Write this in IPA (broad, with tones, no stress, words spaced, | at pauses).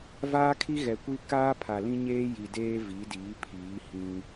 vaː˦kʰi˦ɣɛ˨kʷi˦ kaː˦pʰa˨lĩ˦ɲeː˦ ji˨deː˦ vi˨˦diː˨˦ pʰiː˨˦ hĩ˦